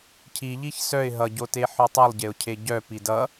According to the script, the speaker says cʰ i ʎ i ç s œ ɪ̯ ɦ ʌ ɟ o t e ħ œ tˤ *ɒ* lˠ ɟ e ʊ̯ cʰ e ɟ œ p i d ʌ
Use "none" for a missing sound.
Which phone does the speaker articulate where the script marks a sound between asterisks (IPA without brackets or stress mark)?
ʌ